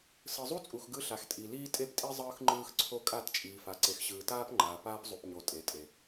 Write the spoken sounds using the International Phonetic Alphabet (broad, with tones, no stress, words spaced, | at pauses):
sɯ˨zˤu˦t͡sʼu˨x ɡɯ˦ɬa˨xtʼi˨ liː˦tʼe˦ptʼi˦ zˤɯː˦xŋ͡ǃɯː˦xǀʰo˦ kʼa˦˨tt͡ʃʼiː˨fa˨ ǀe˨xɕɯː˨ taː˦pŋ͡ǃaː˨ paː˦p zˤu˨pɲo˨ tʼe˨tʼe˨